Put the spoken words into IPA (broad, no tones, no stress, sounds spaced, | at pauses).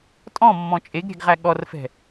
tʼ ɔ̃ mː ɔ̃ t͡ʃʼ e ɡ ɾʲ ɛ̤ ɡ ʁ æ ɠ ɔ r f ɛ̤